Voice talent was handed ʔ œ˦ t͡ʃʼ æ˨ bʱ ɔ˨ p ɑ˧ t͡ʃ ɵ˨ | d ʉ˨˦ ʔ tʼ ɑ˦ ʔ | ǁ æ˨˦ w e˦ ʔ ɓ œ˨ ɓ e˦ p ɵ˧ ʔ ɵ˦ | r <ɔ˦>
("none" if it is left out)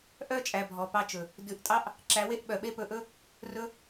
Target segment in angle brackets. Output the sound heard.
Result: ɵ˦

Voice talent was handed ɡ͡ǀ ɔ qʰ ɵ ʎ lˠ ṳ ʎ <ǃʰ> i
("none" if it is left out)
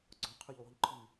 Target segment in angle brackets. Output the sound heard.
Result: ǃʰ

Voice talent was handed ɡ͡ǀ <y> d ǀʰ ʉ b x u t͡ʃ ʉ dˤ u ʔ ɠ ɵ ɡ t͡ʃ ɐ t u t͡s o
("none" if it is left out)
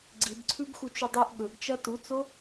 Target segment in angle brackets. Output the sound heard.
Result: i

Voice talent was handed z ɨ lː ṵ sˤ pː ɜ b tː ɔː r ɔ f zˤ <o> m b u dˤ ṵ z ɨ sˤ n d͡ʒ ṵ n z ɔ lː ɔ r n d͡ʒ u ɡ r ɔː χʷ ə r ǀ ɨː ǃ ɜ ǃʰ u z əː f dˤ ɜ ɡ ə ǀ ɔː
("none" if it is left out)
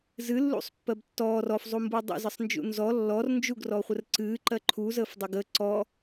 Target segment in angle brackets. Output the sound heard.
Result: u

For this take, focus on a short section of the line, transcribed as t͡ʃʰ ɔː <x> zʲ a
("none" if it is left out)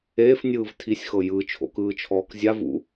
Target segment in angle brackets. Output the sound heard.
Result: k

